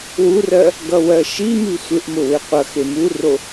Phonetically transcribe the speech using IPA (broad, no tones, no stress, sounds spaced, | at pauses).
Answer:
w u r ɜ | ɡ ʌ w ɜ ʃ i m i sʷ ɪ ʔ m ʊ w ɪ qʷ ʌ x e m u r o